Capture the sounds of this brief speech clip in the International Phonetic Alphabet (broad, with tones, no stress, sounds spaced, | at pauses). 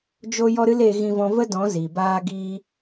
d͡ʒ o˦ j ɔ˦ ɾ ɨ˦ l e˦ ɣ ĩ˦ v ɔ̃˦ v ə˦ d ɔ̃˨˦ z i˨ b aː˦ ɡ i˦